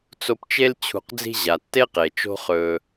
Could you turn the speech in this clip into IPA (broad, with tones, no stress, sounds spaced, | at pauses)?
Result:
t͡s o˧ p t͡ʃ e˦ l t͡ɕʰ ṳ˧ q d͡z i̤˦ ʑ a˨ tː e˦ q e˨ t͡ʃ o̤˦ χ ɵː˧